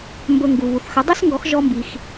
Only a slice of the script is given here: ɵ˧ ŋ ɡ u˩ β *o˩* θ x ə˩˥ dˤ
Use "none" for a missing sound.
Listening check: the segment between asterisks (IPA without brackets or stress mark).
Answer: u˩